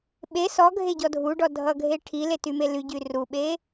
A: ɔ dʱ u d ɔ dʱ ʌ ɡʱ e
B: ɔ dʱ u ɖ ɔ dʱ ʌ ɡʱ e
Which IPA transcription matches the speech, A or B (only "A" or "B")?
B